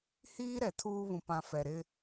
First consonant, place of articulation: glottal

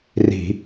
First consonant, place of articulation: alveolar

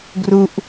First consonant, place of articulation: velar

